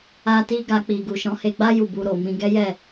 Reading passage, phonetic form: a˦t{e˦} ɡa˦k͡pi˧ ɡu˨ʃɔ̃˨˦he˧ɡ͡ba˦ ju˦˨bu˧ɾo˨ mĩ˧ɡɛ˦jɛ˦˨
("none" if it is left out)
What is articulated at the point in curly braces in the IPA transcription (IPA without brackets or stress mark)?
i˦